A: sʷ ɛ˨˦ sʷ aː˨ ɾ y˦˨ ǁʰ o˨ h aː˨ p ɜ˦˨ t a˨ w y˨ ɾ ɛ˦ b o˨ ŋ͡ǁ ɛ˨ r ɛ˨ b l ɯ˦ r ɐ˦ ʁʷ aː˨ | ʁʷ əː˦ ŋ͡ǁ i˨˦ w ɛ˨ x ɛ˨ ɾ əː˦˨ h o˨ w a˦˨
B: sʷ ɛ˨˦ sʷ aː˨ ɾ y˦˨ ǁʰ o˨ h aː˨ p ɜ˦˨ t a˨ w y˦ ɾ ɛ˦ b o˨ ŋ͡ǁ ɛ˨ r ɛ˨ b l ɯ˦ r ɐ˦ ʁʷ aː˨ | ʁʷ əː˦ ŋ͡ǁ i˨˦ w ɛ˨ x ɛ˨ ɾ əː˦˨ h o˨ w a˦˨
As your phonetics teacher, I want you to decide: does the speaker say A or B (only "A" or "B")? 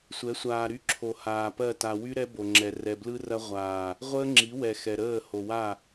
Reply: B